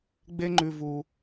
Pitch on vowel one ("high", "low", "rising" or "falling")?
high